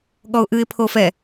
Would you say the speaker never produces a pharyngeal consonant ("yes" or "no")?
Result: yes